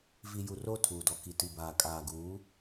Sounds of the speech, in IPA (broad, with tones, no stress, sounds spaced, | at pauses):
v i˨ j u˨ r o˦˨ tʰ uː˨ d ɔ˨ k i˨ t i˨ b aː˨ kʼ aː˨ ɡ uː˨˦